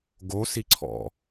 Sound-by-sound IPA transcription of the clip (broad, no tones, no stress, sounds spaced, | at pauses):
ɡ o s i ǀʰ ɔ̰